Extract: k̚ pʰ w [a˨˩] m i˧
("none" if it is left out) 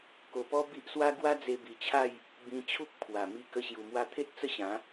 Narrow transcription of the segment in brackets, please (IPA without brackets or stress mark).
a˨˩